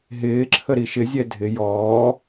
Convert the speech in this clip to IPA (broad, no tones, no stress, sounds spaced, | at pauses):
ɦ ɪː ǁʰ ə ɾ i ʃ ɪ zʲ ɛ dʱ ɪ j ɔː